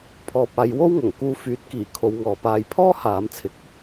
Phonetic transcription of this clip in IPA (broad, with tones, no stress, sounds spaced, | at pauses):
pʰ ɔː˧ p̚ aː˨˧ j w o˥ w ŋ ɐ˨˩ ŋ k uː˧ f yː˨˥ t̚ k iː˨˩ kʰ o˨˧ w ŋ ɔː˨ p aː˧ j pʰ ɔː˥ h aː˨˧ m t͡sʰ ɪ˨˥ k̚